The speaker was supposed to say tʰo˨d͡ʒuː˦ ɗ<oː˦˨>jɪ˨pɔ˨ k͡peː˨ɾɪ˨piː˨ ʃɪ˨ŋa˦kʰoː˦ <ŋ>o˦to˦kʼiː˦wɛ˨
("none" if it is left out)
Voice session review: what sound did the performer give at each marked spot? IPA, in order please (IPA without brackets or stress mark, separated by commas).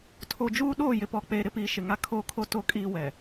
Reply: oː˦˨, kʰ